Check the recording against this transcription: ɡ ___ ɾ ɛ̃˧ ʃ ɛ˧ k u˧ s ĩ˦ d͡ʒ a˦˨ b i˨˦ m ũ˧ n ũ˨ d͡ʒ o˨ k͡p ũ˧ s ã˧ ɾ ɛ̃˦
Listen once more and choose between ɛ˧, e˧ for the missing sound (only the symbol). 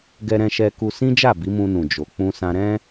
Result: ɛ˧